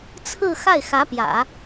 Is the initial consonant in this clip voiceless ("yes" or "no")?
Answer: yes